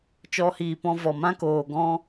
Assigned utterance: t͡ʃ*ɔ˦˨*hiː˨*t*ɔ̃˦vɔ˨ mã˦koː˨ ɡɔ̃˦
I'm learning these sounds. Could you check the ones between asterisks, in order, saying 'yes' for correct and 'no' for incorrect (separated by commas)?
no, no